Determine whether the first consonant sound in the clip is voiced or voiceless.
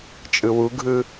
voiceless